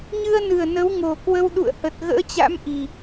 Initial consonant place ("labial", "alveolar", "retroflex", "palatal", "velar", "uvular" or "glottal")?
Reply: palatal